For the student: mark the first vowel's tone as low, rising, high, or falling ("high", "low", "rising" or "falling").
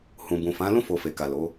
low